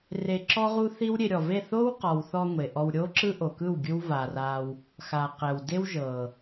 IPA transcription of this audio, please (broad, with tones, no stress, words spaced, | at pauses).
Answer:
re˧ǁɔ˦ʁu˦θi˦w ɾʲe˧ɾʲɔ˨ve˦˨ θo˦wqɔ˨wθɔ˧ ŋʷe˨ʔɔ˧w ɾʲo˦ǁɯ˦ʔo˨kɯ˦˨w ɡʲɯ˦wva˨ra˧w | xa˨ qɛ˨wde˦wʒɤ˨